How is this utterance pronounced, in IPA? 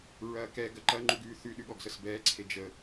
ɹ ɐː k ɛ ɡ ɐ ǃ ɐ ŋ͡ǃ u ɡ ʉː θ ʉ ɗ ʉ ɠ ɔ ɡ s ə s b ɛː ǀʰ e d͡ʒ ə

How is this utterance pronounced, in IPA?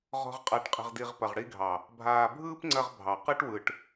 ʁ ɔ̤˨ ʁ qʼ a˨ ʈ qʼ ə̤˨ ʁ d i˨ ʁ p ɐ˨ ʁ ɽ i˧ ɡʱ ɑ˨ | bʱ aː˨ bʱ ɯː˦ p ŋ͡ǀ ɐ˧ ʁ bʱ ɑ˨ q ɯ˦ ʈ w ɯ˨ ʈ

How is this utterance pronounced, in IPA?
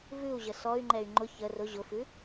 v ʉ u̯ ʑ ə s ɔ y̯ ŋ͡ǃ ɛ y̯ ŋ͡ǃ ʊ ç ə r ʊ ʑ ʊ f ʉ

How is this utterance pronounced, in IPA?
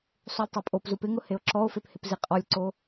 sˤ u lʲ tˤ o pʼ o p z u p ɪ ŋ ʊ h e o̯ ǁ ɔ o̯ f e p h ɪ p z i qʼ ɔ lʲ ǀ o

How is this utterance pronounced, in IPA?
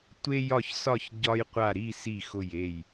tʷ e˧ j ɒ˧˩ ç s ɒ˧˩ ç ɟ ɒ˧ j qʷ a˧˩ ɾ i˥˨ s i˧˩ x ʊ˧˩ j e˧˩ j

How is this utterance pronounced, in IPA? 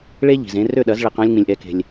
ɭ e˥ ʎ i̤˩ z ẽ˧ r ø˥˩ ɗ ɐ˩˥ z ɭ e˧ q ã˥ lʲ ŋ͡m ĩ˩ lʲ ʔ ɛ˩˥ k e̤˩ lʲ

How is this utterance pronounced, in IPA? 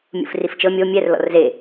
mʲ ṵ f r i f t͡ʃ ɤ mʲ o mʲ ɛ r l ɔ̰ r z e

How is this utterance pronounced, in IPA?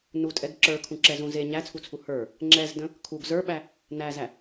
n u tʼ ɛ ɡ ǁ ə˞ kʰ ũ ǁ ɛ z ũ z e ɲ æ t͡sʰ u t͡sʰ u h ə˞ | ŋ͡ǁ ɛ z d ə̃ | kʰ u ɡ z ə˞ ɓ æ | n æ z æ

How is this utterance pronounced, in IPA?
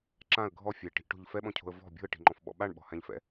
ǁ ã ə̯ ɡʱ ɔ fʲ ɛ ʈ i̤ ʔ ʈ o̤ ʎ f ɛ ɓ ɔ̃ cʰ o̤ ə̯ v ɔ̤ bʲ o̤ ə̯ ʈ i̤ ŋ͡ǃ ɔ̃ f ɓ ɔ̰ ɓ a ɳ ɓ ɔ̤ h ã ʎ f ɛ̰

